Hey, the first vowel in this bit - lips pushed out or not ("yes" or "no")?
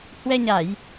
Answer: no